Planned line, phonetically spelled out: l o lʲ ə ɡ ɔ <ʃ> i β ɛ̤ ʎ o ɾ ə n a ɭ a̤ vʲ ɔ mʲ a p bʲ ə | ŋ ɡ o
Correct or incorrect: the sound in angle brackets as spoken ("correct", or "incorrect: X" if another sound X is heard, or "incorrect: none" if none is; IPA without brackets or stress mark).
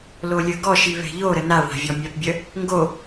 correct